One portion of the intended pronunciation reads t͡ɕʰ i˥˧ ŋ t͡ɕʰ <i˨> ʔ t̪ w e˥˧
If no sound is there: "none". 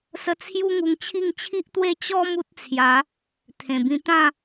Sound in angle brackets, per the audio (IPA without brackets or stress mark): i˦